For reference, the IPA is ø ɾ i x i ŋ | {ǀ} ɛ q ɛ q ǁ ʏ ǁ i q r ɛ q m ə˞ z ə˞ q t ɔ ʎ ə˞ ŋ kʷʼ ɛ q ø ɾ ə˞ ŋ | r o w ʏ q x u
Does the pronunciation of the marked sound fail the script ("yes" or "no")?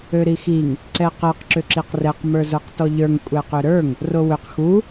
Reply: no